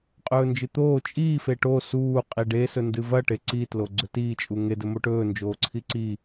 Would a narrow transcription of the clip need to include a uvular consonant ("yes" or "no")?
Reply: yes